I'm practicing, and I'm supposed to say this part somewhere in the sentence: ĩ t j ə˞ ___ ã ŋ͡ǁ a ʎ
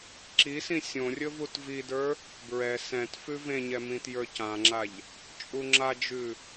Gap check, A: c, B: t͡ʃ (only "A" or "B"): A